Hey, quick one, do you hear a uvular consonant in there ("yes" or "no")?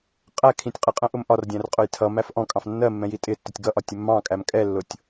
yes